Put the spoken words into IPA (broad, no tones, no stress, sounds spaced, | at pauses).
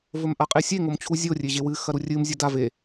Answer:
v ɵ m ʔ a qʼ e sʲ e ŋ o m t͡ɕʰ u zʲ o rʲ e ʑ e w ɨ x ɐ ɾ u rʲ ɨ m zʲ ɐ d a v e